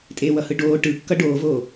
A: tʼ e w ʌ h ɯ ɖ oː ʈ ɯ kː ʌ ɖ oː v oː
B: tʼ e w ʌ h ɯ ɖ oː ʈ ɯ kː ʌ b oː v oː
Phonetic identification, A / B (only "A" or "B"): A